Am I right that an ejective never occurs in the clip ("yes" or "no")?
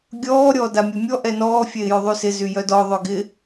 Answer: yes